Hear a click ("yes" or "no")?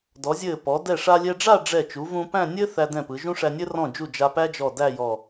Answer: no